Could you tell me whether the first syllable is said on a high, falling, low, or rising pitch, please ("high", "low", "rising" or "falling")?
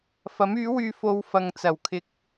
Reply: rising